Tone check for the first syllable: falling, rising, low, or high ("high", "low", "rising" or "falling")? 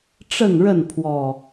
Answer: falling